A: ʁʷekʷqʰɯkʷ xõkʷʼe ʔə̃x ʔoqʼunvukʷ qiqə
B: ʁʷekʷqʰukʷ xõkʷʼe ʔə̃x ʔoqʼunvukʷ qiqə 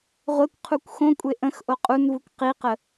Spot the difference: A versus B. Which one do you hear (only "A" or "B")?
B